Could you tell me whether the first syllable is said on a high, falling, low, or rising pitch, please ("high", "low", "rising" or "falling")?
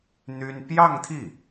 high